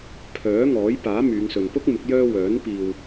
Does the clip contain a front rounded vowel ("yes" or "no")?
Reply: yes